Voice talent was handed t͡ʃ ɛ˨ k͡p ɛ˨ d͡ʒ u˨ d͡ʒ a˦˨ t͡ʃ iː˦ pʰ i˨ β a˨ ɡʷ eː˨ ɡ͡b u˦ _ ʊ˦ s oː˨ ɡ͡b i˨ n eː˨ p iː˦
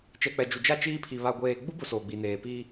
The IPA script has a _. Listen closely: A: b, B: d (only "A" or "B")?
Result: A